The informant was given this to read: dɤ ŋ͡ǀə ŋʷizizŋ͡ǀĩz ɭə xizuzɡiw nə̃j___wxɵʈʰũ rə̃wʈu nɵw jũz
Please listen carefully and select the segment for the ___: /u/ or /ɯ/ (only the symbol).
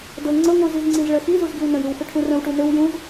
ɯ